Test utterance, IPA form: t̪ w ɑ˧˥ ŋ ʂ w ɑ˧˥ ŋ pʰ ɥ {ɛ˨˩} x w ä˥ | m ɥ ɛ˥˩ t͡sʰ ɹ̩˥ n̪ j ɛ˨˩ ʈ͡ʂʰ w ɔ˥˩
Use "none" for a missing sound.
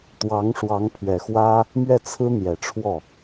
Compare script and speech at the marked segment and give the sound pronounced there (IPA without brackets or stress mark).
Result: ɛ˨˩